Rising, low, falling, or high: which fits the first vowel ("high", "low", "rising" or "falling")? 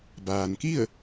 low